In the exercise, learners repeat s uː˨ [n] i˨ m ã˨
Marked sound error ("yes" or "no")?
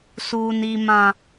no